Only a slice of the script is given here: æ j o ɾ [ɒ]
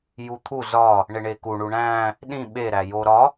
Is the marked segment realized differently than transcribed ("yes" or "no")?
no